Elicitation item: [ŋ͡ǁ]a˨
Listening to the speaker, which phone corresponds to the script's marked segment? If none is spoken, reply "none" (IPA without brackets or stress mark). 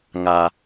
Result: ŋ